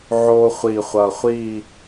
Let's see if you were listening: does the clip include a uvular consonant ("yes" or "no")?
yes